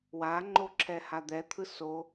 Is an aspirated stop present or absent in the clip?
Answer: present